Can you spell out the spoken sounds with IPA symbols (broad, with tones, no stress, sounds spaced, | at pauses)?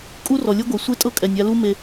kʼ u˦ r ɔ˨ lʲ ɤ˦ ɡʷ ɛ˨ sʷ e˦ tʼ ɤ˦ kʼ ɛ˨ nʲ a˧ l u˦ m e˧